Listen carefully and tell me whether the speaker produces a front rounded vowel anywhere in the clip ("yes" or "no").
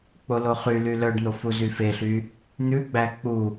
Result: yes